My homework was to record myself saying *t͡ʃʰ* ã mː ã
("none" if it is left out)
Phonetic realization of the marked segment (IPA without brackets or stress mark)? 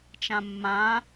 t͡ʃ